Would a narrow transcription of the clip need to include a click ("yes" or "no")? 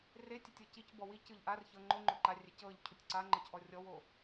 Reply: yes